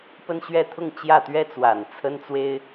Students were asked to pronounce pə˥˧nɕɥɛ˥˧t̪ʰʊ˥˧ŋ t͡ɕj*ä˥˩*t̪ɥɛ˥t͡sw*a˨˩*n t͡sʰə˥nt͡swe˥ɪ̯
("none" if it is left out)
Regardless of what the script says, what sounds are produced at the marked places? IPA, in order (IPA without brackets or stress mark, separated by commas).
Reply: ä˥˩, a˨˩